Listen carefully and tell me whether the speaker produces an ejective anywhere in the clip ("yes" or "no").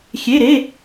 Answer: no